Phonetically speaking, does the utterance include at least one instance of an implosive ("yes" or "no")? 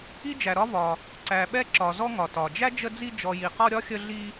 yes